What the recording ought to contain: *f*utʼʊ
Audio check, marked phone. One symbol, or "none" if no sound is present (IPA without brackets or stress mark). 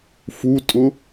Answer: f